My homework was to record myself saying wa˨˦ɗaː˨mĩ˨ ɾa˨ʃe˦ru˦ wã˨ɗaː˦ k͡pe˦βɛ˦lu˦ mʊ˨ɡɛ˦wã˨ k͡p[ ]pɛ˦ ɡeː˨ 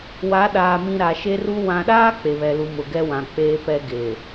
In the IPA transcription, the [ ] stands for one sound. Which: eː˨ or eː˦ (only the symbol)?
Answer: eː˦